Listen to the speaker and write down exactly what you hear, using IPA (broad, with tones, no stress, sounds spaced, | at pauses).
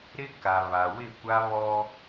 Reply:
ɾ ɪ˦ k a˨ β a˨ w ɪ˦˨ kʷ a˦ β ɔ˦